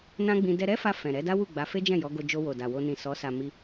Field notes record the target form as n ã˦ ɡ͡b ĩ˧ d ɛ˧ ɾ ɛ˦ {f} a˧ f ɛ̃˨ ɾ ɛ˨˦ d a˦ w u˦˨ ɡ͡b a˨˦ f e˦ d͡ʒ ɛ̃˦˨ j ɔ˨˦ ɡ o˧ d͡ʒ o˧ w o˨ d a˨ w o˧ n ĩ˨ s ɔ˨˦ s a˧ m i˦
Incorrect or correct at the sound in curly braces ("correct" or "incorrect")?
correct